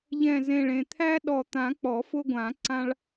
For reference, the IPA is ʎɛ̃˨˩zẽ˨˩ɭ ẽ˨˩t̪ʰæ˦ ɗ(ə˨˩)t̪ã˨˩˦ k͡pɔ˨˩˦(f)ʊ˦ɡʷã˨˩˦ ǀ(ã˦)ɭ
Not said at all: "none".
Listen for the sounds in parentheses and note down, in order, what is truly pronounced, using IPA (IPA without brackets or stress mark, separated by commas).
ɔ˨˩, f, ã˦